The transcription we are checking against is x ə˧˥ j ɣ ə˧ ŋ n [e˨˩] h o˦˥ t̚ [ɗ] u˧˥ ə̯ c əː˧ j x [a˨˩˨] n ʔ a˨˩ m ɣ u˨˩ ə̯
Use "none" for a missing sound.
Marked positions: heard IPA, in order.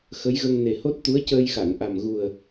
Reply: e˨˩, t̪, a˨˩˨

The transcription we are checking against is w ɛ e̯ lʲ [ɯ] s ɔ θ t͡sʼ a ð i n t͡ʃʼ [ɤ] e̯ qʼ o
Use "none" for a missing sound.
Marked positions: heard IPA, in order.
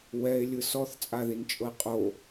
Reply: ɯ, ɤ

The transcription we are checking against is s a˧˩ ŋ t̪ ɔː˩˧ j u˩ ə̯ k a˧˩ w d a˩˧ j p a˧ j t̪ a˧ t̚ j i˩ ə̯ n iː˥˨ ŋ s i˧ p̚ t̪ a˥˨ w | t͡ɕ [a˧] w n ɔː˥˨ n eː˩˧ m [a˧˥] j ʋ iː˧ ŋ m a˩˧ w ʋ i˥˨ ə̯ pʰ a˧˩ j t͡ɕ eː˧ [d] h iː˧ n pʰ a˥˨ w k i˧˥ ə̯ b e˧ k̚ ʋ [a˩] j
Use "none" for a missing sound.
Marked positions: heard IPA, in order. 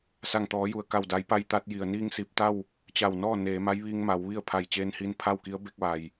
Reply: a˧˩, a˧˥, n, a˩

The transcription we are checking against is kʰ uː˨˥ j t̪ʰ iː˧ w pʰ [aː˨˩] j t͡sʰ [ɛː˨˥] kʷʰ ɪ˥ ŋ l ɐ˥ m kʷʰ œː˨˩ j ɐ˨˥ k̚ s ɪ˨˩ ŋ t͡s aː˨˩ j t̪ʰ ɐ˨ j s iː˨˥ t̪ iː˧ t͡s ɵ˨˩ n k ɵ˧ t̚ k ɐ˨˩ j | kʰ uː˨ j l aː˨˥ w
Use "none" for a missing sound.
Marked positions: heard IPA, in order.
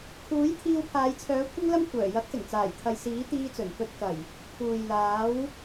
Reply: aː˨˧, œː˨˥

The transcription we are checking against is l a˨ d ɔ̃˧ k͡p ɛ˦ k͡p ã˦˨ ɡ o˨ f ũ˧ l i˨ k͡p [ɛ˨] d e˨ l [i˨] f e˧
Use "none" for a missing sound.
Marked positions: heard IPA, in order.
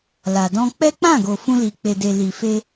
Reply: e˨, i˨

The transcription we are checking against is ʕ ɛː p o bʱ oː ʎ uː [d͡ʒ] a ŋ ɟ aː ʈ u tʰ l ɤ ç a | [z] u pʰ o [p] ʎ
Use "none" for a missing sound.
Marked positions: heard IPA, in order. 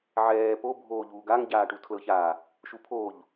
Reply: ɡ, ʃ, none

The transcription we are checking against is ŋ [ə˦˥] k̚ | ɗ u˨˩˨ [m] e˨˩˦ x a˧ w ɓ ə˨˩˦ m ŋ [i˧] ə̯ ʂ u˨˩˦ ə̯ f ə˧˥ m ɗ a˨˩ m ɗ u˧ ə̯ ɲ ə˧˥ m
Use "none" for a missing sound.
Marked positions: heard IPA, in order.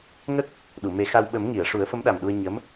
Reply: ə˦˥, m, i˨˩˨

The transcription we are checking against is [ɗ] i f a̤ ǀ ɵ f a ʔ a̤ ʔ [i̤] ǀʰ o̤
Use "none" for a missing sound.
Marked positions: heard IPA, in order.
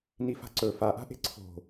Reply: n, e̤

